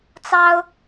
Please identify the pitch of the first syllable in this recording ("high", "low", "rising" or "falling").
high